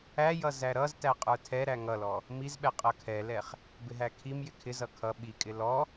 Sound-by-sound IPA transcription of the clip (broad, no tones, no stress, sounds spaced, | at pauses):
æ j ʌ z æ ɾ ʌ z t æ qʼ ə˞ tʰ ɛ ɾ æ ŋ ʌ l ɔ | m i z ɓ ɛ qʼ ʌ kʰ ɛ l ɛ χ | b ɪ ɦ æ kʰ i m j ɪ kʰ ɪ z ʌ kʰ ʌ ɓ i kʼ ɪ l ɔ